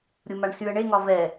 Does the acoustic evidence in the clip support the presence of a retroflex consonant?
yes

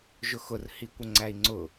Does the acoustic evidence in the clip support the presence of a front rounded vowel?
no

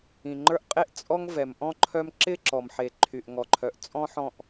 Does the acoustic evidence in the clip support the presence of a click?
yes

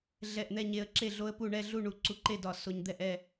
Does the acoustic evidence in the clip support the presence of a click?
yes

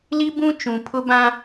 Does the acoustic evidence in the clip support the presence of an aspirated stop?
yes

